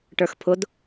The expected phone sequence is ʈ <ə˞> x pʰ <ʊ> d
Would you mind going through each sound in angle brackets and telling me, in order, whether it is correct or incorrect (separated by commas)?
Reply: correct, correct